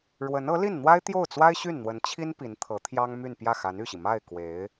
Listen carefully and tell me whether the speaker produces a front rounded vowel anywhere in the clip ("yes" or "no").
yes